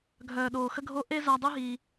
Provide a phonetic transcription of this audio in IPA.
ɡʱ œː˨ ɗ oː˨ x ə˧ ɡʱ o˧ ʔ e˧ z a˧ dˤ ʉ˦ ɦ iː˧

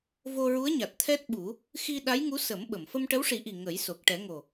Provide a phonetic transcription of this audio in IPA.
v o˧ ɹ u˧˥ ə̯ ɲ a˨˩ t̚ t̪ʰ ɛ˦˥ t̚ ɓ u˨˩˦ | x i˧ ɗ a˧˥ j ŋ u˧˥ s ə˨˩˦ m ɓ ə˨˩˨ m f ə˧ m ʈ ə˧˥ w ʂ i˨˩˦ ʔ i˨˩ ŋ ə˨˩˦ j s o˨˩ k̚ ʈ ɛ˨˩˦ ŋ o˨˩

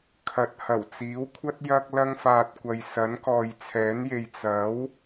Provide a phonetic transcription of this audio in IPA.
kʰ ɐ˨ t̚ h ɐ˨˩ w t͡s iː˨˥ w kʷʰ ɐ˥ t̚ j ɐ˧ k̚ l ɐ˧ ŋ f aː˨ t̚ kʷ ɐ˨ j s ɐ˨˥ n k ɔː˨ j t͡sʰ ɛː˨˥ n j e˨ j t͡s ɐ˨˥ w

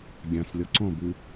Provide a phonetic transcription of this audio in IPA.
ɡʲ ã s lʲ ɔ ǀ ɔ̃ b ʉ

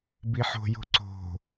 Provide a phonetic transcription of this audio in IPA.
b i ħ o̤ j o̤ ǀ o̤

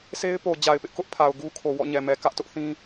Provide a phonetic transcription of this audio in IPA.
s e˦ ɪ̯ p o˨ d͡ʑ a˨ ɪ̯ p ɪ˦ ʔ k ʊ˦ ʔ pʰ a˨ ʊ̯ ɡ u˦ kʰ o˨ w ɔ̰˦˨ ɲ ɛ˨ m ɛ˨ k ä˦ ʔ t ʊ˦ ʔ θ ĩ˦

